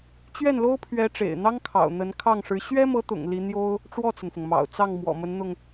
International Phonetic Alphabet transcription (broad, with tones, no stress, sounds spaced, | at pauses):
t͡ɕ ɥ ɛ˥˩ n l o˥ ʊ̯ pʰ ɥ ɛ˧˥ ʈ͡ʂ ḛ˨˩ ɪ̯ n̪ ɑ˥ ŋ kʰ ɑ̰˨˩ ʊ̯ n̪ ə˧˥ n kʰ ɑ˥˩ ŋ ʂ ɻ̩˧˥ ɕ ɥ ɛ˥ m ɤ˧˥ t̪ ʊ̰˨˩ ŋ l i˧˥ n̪ j o˥ ʊ̯ | ʈ͡ʂ w ɔ˥˩ t͡s ə˩ n f ʊ˩ ŋ m ɑ̰˨˩ ʊ̯ t͡s ɑ˥˩ ŋ m w ɔ̰˨˩ m ə˧˥ n n̪ ʊ˧ ŋ